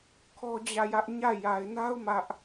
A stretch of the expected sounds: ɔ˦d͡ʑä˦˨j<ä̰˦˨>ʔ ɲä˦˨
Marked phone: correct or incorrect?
incorrect